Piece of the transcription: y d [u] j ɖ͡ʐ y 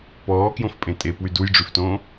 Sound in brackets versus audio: correct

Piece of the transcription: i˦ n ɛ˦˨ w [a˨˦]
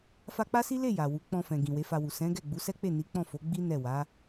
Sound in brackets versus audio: correct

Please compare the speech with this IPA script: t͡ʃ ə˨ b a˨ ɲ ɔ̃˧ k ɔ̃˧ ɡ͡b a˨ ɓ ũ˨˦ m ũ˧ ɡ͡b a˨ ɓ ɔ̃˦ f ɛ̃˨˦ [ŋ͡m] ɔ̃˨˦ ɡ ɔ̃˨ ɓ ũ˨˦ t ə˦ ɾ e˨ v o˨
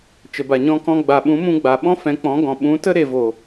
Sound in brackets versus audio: incorrect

